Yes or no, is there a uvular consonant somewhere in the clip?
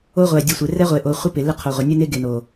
yes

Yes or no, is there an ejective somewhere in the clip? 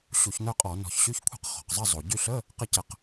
yes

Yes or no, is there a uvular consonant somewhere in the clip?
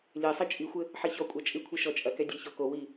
no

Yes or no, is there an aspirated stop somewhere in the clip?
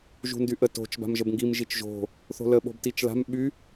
no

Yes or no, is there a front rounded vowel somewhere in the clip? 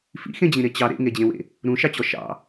no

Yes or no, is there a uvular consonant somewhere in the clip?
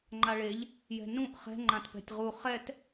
yes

